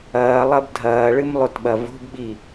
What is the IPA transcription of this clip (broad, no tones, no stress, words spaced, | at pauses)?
ɐːlˠɐb dʱɐːɭɨmlˠotɓɐ vo̤bɓi